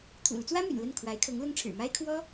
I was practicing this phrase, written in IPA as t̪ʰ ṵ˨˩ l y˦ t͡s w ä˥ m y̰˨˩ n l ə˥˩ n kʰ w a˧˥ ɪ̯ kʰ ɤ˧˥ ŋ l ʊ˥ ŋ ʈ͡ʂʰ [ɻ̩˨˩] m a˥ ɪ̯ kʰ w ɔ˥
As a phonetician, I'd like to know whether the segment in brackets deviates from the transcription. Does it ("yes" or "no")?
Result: no